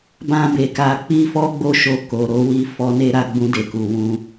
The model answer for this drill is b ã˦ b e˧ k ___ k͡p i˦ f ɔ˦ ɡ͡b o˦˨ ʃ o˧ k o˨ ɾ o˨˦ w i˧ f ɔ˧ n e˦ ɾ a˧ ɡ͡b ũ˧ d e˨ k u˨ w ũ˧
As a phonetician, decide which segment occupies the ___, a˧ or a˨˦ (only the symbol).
a˧